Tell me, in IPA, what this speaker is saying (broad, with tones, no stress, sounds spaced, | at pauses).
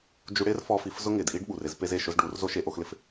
d͡ʒ u˧ ɽ ɪː˦ r f ɔ˧ f i˨ f z ʊ˦ ŋ ɪː˨ d ʔ i˦ ɖ ɓ u˨ r ɪ˦˨ z p e˧ z e˨ ʃ ʊ˧ z ɖ uː˨˦ r z o˦ ʃ e˧ ʔ o˧ x l ɪ˦ f